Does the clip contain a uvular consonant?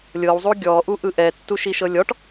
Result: no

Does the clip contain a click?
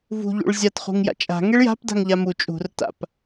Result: no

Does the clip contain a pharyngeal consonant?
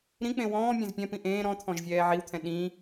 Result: yes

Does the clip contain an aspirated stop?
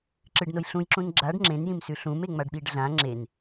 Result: no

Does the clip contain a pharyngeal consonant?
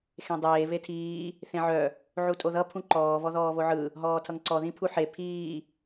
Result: yes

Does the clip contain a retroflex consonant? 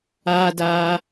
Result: no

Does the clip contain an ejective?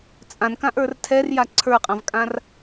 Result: yes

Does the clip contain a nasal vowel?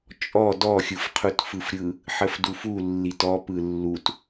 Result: no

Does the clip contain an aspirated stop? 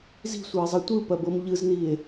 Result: no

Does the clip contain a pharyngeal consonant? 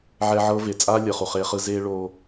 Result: yes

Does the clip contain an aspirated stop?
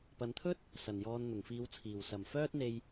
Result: yes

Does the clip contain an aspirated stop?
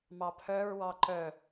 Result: yes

